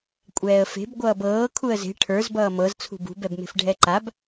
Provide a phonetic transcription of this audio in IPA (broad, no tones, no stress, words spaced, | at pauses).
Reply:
kʷʼɛːə̯fe̤b ɡʷʌːbɤː kʰuə̯ze̤ ʈʰə˞z bʌːmɤz t͡sʰṳbṳb ɛbme̤fɖʱɛǃab